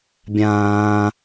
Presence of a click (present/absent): absent